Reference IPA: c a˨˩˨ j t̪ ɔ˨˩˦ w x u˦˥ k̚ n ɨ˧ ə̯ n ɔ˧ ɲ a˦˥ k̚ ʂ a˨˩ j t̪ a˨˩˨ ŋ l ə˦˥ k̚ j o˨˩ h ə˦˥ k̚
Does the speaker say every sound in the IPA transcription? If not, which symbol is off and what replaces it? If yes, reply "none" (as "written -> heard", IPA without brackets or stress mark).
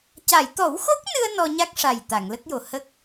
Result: u˦˥ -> o˦˥